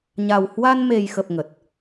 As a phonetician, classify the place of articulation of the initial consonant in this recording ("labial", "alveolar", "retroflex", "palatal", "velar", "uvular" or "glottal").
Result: palatal